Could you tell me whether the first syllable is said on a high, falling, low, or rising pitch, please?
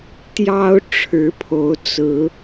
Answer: high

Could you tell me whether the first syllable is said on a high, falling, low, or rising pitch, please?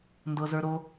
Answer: low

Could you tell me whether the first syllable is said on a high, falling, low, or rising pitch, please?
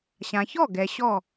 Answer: low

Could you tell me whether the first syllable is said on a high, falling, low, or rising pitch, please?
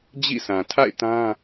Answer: falling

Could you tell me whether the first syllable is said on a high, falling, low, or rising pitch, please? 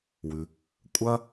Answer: low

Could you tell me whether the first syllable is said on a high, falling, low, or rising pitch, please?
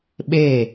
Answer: falling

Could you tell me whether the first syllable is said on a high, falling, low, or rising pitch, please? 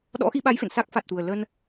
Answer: rising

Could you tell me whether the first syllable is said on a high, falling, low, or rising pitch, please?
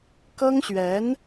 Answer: high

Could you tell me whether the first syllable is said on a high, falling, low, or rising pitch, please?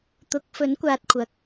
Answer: rising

